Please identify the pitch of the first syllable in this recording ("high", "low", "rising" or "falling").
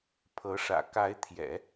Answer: rising